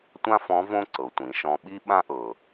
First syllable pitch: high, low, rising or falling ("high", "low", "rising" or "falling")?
high